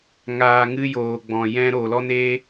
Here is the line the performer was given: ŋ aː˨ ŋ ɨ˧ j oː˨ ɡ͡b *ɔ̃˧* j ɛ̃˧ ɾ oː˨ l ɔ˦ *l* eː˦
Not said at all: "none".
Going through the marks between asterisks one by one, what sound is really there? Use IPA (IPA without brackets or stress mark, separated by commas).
ɔ̃˨, n